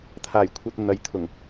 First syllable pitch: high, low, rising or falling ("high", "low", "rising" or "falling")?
low